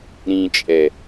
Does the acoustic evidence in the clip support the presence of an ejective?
yes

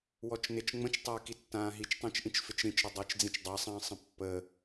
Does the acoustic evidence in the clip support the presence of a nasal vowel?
yes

